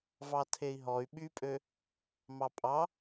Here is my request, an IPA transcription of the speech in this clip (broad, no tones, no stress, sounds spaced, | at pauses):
v ɑ tʰ e i̯ ɦ ɔ y̯ ɓ y pʼ ø | m ɑ pʼ ɑ